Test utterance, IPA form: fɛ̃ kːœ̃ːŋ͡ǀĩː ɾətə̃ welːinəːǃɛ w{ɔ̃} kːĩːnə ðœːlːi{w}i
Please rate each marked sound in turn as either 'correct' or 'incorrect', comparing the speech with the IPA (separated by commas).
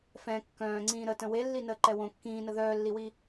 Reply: incorrect, correct